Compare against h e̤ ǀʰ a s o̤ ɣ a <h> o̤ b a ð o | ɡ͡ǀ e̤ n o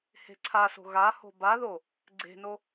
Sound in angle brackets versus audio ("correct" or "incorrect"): correct